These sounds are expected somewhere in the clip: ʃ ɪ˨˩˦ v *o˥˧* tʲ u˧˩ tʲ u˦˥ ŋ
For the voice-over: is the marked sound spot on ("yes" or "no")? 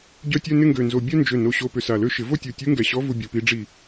yes